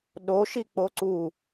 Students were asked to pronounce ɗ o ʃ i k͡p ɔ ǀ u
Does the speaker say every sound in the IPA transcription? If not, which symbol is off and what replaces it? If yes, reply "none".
ɔ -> o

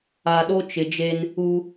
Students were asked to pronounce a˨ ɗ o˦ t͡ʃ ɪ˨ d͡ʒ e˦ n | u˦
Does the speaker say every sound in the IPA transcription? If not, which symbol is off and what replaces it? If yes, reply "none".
none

